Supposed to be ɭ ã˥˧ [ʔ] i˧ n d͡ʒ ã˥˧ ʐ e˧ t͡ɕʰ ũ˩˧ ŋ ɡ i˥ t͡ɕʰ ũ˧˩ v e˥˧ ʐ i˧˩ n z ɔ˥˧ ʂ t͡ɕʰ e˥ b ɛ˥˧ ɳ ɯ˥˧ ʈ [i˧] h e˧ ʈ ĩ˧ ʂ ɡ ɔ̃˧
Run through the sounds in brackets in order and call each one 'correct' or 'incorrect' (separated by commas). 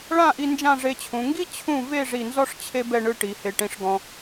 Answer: correct, incorrect